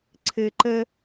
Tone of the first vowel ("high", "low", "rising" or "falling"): low